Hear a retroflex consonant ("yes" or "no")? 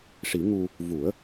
yes